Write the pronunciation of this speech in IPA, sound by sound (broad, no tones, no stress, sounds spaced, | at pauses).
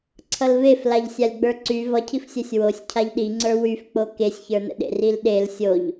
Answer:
ǀʰ ʌ l v e f l a ʎ sʲ a lʲ ɡ͡b ə˞ ǀ y v ʌ cʰ i f sʲ ɜ sʲ w o sʲ cʰ a ʎ ɗ i ŋ͡ǀ ə˞ w y f k͡p o k e sʲ ç ə˞ n ə̰ ɗ ḛ r i l ɗ e l sʲ o ʎ